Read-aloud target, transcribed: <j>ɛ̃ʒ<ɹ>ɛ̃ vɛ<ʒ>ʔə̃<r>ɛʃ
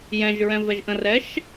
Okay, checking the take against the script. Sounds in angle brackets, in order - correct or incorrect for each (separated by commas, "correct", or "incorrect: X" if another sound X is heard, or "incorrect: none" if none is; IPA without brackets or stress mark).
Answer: correct, correct, correct, correct